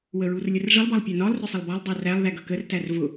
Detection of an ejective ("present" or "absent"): absent